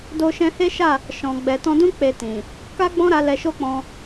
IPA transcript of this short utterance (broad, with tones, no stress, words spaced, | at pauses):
do˧ʃɛ̃˧ he˦ʃa˦˨ | ʃɔ̃˨ ɡ͡bɛ˨tɔ̃˧dũ˦ k͡pe˧tĩ˨ | ka˦ɡ͡bɔ̃˦ɾa˧ lɛ˧ʃo˦k͡pɔ̃˧